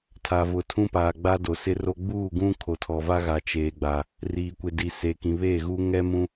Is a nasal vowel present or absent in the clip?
present